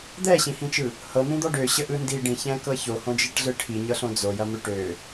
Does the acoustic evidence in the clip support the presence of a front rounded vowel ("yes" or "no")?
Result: yes